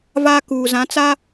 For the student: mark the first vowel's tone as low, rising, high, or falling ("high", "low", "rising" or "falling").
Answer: high